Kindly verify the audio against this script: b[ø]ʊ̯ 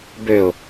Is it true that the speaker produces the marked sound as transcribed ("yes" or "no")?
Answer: yes